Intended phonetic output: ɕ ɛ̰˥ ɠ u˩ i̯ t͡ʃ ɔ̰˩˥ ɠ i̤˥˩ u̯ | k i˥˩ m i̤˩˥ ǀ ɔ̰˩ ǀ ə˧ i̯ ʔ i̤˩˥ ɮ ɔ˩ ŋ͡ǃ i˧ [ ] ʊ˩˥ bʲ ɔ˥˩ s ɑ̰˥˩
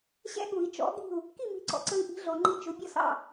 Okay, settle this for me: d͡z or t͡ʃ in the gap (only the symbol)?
t͡ʃ